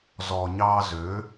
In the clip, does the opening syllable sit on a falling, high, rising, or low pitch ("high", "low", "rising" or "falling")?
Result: low